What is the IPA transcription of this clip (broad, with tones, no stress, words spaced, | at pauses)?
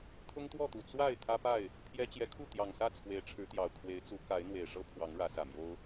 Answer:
t̪ʰʊ˦ŋt̪wɔ˥˨t̪u˨˩ t͡swa˥˨ɪ̯ t̪ʰä˦pa˥˨ɪ̯ | pʰjɛ˦ t͡ɕjɛ˨˦kʰu˥˨ t̪jɑ˨˩ŋsä˥˨ t͡sʰwe˨˦ɪ̯ʈ͡ʂʰɻ̩˨˦t̪jɑ˨˩ʊ̯ kʰwe˨˦ɪ̯ t͡su˨˦ ka˨˦ɪ̯ n̪we˨˩ɪ̯ʂɤ˦ pʰwɑ˨˦ŋɻä˨˦sä˨˩mjo˦ʊ̯